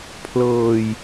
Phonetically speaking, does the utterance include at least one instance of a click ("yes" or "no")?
no